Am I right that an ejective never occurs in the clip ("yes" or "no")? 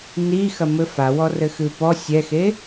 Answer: yes